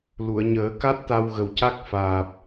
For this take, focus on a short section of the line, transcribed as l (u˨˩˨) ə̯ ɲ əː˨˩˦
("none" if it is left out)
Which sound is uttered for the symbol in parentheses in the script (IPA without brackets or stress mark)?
u˨˩˨